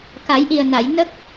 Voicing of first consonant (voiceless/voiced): voiceless